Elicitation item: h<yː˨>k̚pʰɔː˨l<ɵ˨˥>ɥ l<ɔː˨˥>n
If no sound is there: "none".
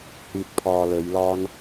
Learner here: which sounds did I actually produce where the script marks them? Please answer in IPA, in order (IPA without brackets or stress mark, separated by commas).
yː˨, ɵ˨˧, ɔː˥